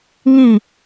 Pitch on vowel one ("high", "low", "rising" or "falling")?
falling